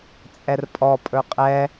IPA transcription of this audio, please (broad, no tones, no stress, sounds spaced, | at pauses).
t͡sʼ ɛ r pʼ ɔ pʼ ɵ qʼ ɛ